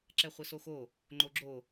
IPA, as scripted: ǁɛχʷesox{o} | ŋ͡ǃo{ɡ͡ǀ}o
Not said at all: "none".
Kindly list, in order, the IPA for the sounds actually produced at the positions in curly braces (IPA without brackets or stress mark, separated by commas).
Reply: o, ɡ͡ǁ